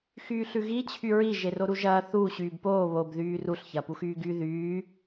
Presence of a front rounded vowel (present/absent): present